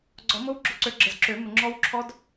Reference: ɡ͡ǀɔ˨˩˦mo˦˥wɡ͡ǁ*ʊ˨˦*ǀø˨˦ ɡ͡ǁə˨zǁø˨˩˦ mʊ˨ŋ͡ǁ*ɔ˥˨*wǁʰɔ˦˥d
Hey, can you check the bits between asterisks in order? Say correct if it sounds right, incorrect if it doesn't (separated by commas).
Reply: correct, incorrect